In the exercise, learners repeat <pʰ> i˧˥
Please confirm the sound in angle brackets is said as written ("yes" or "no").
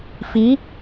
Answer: no